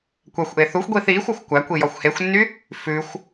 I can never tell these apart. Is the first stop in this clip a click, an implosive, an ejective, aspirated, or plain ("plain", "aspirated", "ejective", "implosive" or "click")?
plain